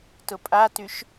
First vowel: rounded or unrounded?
rounded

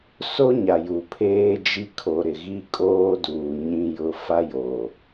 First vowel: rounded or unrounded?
rounded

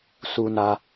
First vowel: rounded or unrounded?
rounded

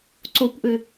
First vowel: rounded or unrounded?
rounded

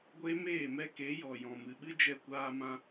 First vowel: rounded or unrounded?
unrounded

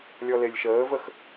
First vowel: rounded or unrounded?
rounded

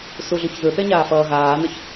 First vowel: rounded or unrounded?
rounded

